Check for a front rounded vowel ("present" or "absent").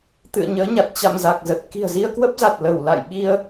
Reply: absent